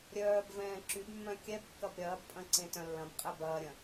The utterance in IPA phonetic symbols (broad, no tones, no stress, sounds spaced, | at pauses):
ɾʲ œː b v ɛ̃ː ǁ y b mː œ̃ kʲ ɛ b kː ɐ b ɾʲ ɐː b pʼ ɐ̃ ǀ ẽ t œ̃ lː ɐ̃ b qʼ ɛ b ɐː ɾʲ ɐ̃